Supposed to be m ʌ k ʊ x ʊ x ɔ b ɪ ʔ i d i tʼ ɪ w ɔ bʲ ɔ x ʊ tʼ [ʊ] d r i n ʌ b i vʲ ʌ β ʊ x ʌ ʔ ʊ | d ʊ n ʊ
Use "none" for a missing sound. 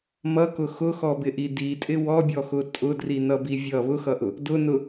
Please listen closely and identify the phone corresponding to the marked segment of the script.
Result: ʊ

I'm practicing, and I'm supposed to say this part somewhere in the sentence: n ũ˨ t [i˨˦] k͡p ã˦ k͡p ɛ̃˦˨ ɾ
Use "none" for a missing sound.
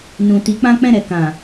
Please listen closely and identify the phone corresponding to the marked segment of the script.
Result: i˨˦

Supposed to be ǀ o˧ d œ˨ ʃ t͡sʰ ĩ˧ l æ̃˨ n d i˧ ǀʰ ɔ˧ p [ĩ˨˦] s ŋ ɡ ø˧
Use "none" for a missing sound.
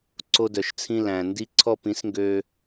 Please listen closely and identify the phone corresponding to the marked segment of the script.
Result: ĩ˨˦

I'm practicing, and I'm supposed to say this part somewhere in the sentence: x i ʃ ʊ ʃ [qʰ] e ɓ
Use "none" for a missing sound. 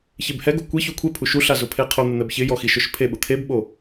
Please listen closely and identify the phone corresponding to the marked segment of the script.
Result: pʰ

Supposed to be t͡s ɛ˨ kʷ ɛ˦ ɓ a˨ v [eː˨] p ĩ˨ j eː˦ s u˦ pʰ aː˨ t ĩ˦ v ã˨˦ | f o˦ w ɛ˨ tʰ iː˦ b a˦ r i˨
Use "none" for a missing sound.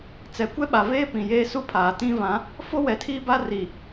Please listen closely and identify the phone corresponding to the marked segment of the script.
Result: eː˦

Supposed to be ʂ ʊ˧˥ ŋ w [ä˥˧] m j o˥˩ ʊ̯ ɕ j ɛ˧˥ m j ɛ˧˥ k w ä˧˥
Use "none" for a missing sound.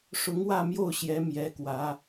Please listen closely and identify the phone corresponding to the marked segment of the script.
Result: ä˥˧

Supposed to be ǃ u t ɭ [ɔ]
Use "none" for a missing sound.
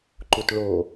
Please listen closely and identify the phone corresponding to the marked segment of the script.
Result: o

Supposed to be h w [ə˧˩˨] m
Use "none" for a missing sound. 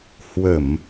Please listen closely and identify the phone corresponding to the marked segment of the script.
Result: ə˧˩˨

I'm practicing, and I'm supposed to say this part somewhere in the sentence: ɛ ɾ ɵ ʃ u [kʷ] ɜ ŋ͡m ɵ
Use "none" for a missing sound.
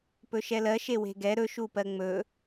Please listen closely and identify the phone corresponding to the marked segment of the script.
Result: p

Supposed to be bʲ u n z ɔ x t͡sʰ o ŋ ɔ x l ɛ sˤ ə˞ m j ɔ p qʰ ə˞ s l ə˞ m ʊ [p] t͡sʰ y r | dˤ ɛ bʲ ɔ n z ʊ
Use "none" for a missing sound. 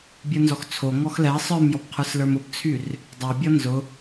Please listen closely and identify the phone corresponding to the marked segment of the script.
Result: p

